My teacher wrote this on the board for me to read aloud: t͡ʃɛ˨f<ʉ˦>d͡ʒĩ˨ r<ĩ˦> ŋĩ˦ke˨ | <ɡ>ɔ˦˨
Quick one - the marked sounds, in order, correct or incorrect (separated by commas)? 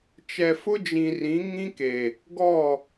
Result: incorrect, incorrect, correct